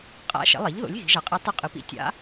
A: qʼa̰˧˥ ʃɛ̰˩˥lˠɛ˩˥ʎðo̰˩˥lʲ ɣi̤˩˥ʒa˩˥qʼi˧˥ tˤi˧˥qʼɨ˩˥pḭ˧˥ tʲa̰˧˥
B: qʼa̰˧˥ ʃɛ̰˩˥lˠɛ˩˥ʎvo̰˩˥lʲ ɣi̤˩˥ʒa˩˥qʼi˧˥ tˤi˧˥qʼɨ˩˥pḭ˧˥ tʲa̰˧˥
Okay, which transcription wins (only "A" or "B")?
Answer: A